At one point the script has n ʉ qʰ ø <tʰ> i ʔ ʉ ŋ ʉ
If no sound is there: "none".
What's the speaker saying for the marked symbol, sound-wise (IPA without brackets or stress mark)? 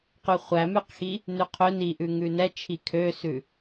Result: n